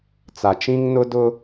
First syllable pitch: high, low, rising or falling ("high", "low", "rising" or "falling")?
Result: low